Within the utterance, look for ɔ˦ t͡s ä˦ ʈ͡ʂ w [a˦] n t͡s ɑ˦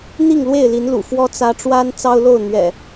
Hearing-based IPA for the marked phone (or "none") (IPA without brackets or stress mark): a˦